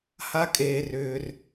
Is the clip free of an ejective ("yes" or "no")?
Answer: no